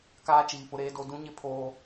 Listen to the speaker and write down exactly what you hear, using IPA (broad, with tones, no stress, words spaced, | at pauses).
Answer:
kaː˦ t͡ʃiː˨pʊ˦ɾeː˦do˦ dũ˦ɲɪ˦ pʰoː˦